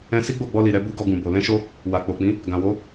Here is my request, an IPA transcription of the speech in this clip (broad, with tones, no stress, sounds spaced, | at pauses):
ɛ̃˧ s i˦ ɡ͡b o˦˨ ɡ͡b ɔ˧ l i˨ ɾ ɛ˧ b u˦ ɡ ɔ˧ ɡ ũ˨ b o˨ l ɛ̃˧ ʃ o˧ | w a˨ k͡p o˨ k͡p ĩ˨˦ | ɡ ã˨ w o˨˦